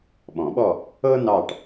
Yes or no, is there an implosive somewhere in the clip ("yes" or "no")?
yes